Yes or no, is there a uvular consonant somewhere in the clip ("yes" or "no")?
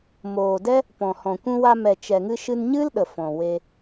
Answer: no